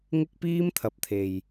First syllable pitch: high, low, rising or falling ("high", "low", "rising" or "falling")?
high